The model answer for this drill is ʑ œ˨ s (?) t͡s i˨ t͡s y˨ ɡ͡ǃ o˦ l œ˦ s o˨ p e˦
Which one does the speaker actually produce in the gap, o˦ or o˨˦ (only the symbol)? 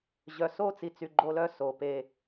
o˦